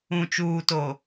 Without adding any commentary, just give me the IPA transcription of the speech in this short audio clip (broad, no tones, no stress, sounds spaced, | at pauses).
ũ t͡ʃ uː t o